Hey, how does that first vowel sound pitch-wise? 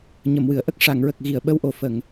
low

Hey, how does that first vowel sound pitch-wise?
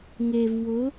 low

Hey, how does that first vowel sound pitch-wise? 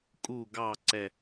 low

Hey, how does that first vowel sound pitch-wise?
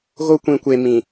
high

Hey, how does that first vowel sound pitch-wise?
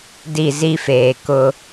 falling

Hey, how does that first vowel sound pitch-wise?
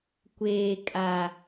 low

